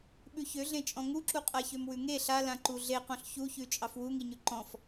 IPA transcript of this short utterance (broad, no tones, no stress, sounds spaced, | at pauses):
ɓ ʉ ç ø ɮ ẽ t͡ʃʼ ɔ̃ ŋ u ǁ u qʼ a ç ø m w ʉ ŋ e ɬ a l ã ǃ u ɮ e q ɔ̃ ɬ ç u ç ʉ t͡ʃʼ ɑ f w u ŋ i ɲ ʉ ǃ ɔ̃ f